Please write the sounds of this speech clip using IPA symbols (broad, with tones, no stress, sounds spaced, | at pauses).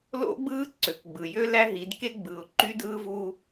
l o̰˦ ɡ͡b ɯː˦ ǀ ø˨ k ɡ͡b ɯ˨ j ø˦ l æ˦ ɦ i˨˦ d k e˦ ɡ͡b ɯ˨ ʊ̯ ǃ y˦ d ɯː˦ v u˦